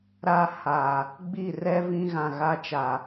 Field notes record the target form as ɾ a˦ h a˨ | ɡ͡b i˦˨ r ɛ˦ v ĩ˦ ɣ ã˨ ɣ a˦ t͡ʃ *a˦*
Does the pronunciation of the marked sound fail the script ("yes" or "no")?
yes